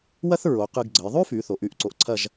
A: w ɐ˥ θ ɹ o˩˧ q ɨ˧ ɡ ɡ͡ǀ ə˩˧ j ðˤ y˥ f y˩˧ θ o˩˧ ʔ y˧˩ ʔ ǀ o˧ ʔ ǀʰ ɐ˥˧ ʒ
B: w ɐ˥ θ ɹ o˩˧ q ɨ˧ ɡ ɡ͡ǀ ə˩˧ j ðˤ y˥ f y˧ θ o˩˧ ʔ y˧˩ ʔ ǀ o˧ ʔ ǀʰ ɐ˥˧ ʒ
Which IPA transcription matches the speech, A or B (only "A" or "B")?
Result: A